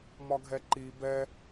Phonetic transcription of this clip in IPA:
m ɒ ɡʱ ɛ ǃ i b ɛ

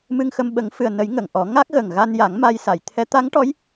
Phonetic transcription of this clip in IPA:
m ɨ˧ ŋ x ə˧ m ɓ ə˨˩˦ ŋ f ɨ˨˩ ə̯ n ə˨˩˦ j ŋ ə˨˩˨ ŋ ʔ ɔ˨˩˦ ŋ a˦˥ k̚ ɣ ə˨˩ ŋ ɣ a˧ n j a˨˩˦ ŋ m a˧ j s a˨˩˨ j t̪ʰ ɛ˧˥ t̪ a˧˥ ŋ ʈ ɔ˧˥ j

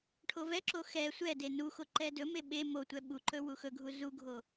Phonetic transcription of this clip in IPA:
ʈʰ o v ɛ ǁ o x ɛ sʷ ɛ d e n u x o ǃ ɛ d ɵ m e ɓ e m o tʷ ɛ ɓ u ǃ ɵ w u x ɵ ɡʱ u z u ɡʱ o

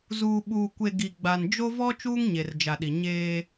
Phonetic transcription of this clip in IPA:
z uː˨ ɓ uː˨ kʷ e˨ ɡ i˨ ɡ͡b a˨ n d͡ʒ o˦ v ɔ˦ t͡ʃ uː˦ ŋ ɲ e˨ r d͡ʒ a˨ ɗ i˨ ɲ eː˦

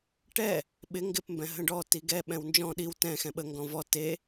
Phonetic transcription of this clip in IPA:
ʈ ɛ | ɓ ɪ ŋ ɡ ɪ p m b ɛ̃ ɦ ə̃ ɖ ɔ t i ɡ ɛ ɓ ɛ̃ w n d͡ʒ ɔ̃ ɗ i w t ɛ̃ x ɛ̃ ɓ ə ŋ ɡ ɔ̃ v ɔ t e

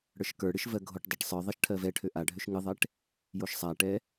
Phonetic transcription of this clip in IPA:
ɽ ə˞ ʃ k ə˞ ɽ ɨ ʃ v ɜ ɡʱ o ʈ dˤ ɜ ʈ sˤ ə˞ ðˤ ɜ ʃ ʈʰ ɜ v ɛ ʈʰ ø ʔ a ɖʱ ø ʃ ŋ ɨ ðˤ ɛ ʈ | j o ʃ sˤ a ʈ ɛ

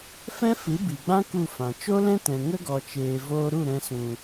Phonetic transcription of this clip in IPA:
f ɛ̃˦ f ɨ˨˦ b i˨ ɡ͡b ã˦ k u˦˨ f ã˨ t͡ʃ o˦ l ɛ̃˦ t ɛ̃˨ ŋ ə˦ ɡ ɔ˨ t͡ʃ eː˨ v oː˧ ɾ u˦˨ ɾ ɛ̃˧ s ũ˨

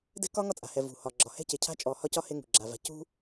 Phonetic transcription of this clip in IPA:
d ɛ̤˦ k ɒ˦ ŋ ɒ˦ t͡sʼ a̤˨ h ɛ˨ v ṳ˨ h ɒ˨ ɡ͡ǁ ɒ˨ h ɛ̤˦ c e˨ cʰ a̤˦ t͡ʃʼ ɔ˨ h ɒ˦ c ɒ˦ h e˦ ŋ ṳ˨ ɡ͡ǁ a˨ v a̤˨ c ṳ˦

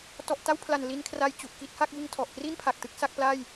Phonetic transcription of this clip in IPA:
t ɔ˨˩ ʔ t a˥˩ w pʰ l a˨˩ n l i˧ n kʰ r a˧ j t͡ɕ u˨˩ ʔ k i˥˩ t̚ h a˥˩ k̚ b ɯ˧ ŋ tʰ ɔ˨˩ ʔ k r i˥˩ n pʰ a˨˩ k̚ t ɯ˦˥ k̚ s a˦˥ k̚ p l a˥˩ j

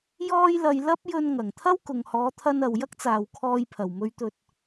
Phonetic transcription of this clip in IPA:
j ɔː˥ j l ɐ˧ j l ɐ˥ p̚ j ɵ˧ n ŋ ɐ˨˩ ŋ t̪ʰ ɐ˥ w k ʊ˨ ŋ h ɔː˨˧ t̪ʰ ɐ˧ n ɐ˨ w j ɐ˥ k̚ t͡s aː˨ w kʰ ɔː˧ j pʰ ɐ˨˩ w m ɵ˧ ɥ t̪ ɵ˧ t̚

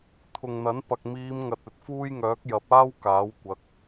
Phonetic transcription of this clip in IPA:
t̪ʰ ʊ˨ ŋ n̪ ɐ˨˥ n p ɐ˨ k̚ m iː˨˧ m ŋ ɐ˨ t̚ ɵ˨ t̚ f uː˧ j ŋ œː˨˥ k̚ j ɐ˨˥ p̚ aː˥ w k aː˨˥ w kʷ ɐ˨˥ k̚

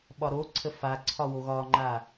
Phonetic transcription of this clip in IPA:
ɓ ɒ ɾ o ǀʰ ə f a ǀʰ ɒ w o ɣ ɒ ŋ͡ǃ a

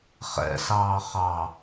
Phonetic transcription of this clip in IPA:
χ ɛ̰ s ɑː χ ɑ

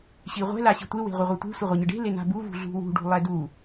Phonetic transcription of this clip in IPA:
ɕ i ʁʷ ɛ̤ l a ɕ i̤ tʷ e w e̤ ʁʷ ɛ ʁʷ ɛ tʷ e̤ sʷ ɘ ʁʷ a ɲ ɘ ɖ e̤ l e n a̤ b u v ṳ ɮ ṳ w ṳ ɖ ṳ lˠ ɛ d u

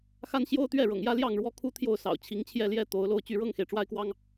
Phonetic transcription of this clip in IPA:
x a˦ n ɕ j o˦ ʊ̯ t̪ ɥ ɛ˥˨ ɻ ɤ̰˨˩ ŋ j ä˦ l j ɑ˥˨ ŋ ɻ w ɔ˦ kʰ u˦ t̪ʰ j o˥˨ ʊ̯ s ɑ̰˨˩ ʊ̯ t͡ɕʰ i˨˦ ŋ t͡ɕʰ j ɛ˥˨ l j ɛ˥˨ t̪ o˨˦ ʊ̯ l o˥˨ ʊ̯ t͡ɕ y˦ ɻ ɤ˥˨ ŋ x e˩ ɪ̯ ʈ͡ʂ w a˦ ɪ̯ k w ɑ˦ ŋ

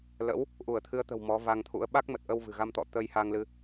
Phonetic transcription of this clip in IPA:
l ə̰˧˥ w | ʔ u˧˩ ə̯ t̪ʰ ɨ˨˦ ə̯ t̪ ə̤˨˩ w m ɔ˨˦ v a˧ ŋ t̪ʰ ṵ˧˥ ə̯ ɓ a˦˥ k̚ m ə˨˩ t̚ ʔ ə˧ w v ɨ̤˨˩ ɣ a˧ m t̪ ɔ̰˧˨ t̪ ə˧ j h a˧ ŋ l ɨ˧

